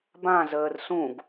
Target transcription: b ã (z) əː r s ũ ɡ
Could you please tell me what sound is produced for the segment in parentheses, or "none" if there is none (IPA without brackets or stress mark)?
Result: z